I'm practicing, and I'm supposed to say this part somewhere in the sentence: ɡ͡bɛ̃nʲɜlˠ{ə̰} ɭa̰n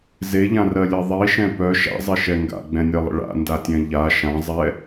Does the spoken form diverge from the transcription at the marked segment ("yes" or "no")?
no